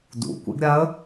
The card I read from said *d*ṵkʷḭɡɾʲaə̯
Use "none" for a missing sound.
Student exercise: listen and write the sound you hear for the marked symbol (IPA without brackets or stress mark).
d